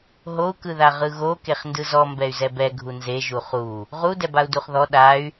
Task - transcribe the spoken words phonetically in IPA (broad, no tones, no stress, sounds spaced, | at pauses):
ɦ o u̯ k ɯ ð a ʁ ɯ ɣ o k e χ n d ɯ z ɔ m b ɛ y̯ z ɛ b ɛ ɡʱ u n z e ʒ u χ u | ʁ u d ɛ b a u̯ d u χ ð ɔ ɗ a y̯